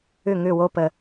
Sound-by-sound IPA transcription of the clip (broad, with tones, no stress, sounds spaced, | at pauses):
ʏ˦˨ ŋ ʏ˦˨ w o˦ p ə˧